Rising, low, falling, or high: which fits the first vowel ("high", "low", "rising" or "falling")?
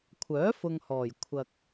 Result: rising